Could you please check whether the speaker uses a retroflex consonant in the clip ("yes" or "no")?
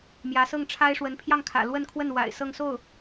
yes